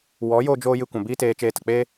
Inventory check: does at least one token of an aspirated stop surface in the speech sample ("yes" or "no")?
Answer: no